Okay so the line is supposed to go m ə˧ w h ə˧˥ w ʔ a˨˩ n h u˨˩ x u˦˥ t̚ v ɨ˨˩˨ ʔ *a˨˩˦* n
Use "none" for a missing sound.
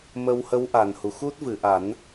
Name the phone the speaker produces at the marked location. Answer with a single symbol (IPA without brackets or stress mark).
a˨˩˦